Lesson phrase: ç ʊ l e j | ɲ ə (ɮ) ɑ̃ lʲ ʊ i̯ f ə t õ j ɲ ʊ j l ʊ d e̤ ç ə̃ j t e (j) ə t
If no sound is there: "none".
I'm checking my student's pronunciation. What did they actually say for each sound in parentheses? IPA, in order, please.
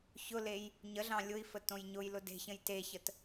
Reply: ɮ, ç

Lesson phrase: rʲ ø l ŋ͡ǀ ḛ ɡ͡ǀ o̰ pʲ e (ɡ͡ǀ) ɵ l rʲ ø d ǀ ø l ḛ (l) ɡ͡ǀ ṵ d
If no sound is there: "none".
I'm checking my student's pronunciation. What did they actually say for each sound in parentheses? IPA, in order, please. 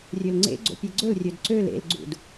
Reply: ɡ͡ǀ, l

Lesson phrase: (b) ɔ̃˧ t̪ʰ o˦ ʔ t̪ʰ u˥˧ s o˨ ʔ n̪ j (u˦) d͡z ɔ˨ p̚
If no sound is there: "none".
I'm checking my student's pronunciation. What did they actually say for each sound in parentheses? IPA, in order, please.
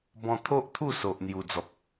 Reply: b, u˨˩

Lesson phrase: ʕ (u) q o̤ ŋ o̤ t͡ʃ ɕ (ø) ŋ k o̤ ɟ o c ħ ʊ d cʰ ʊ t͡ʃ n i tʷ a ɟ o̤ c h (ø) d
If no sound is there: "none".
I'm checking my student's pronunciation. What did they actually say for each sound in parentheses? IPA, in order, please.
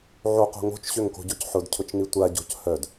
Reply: o, ø, œ

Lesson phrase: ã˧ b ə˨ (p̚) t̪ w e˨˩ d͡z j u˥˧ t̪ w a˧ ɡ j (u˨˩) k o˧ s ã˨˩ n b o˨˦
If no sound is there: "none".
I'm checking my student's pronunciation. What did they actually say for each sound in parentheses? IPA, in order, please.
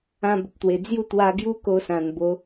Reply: p̚, u˦

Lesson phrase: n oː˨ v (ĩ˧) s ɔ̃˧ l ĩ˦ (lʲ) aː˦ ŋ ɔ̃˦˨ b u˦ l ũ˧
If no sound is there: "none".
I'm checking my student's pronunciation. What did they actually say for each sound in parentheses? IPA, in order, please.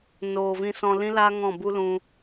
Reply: ĩ˧, l

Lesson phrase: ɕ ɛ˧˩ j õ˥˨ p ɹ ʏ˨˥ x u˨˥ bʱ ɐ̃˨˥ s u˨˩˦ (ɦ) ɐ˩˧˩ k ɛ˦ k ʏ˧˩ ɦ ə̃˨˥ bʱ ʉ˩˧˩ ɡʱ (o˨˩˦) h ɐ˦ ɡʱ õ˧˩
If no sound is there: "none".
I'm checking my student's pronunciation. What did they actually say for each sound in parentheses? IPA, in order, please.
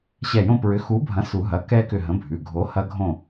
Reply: ɦ, o˨˥

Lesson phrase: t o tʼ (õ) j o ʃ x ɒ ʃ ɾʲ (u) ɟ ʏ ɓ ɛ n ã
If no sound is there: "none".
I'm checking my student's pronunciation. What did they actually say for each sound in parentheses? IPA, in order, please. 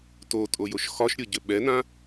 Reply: o, o

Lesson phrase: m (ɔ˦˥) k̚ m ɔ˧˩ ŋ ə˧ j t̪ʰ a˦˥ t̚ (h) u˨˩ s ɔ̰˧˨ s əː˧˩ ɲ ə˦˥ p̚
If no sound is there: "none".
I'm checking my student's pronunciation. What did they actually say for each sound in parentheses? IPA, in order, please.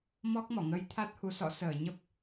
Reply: ɔ˦˥, h

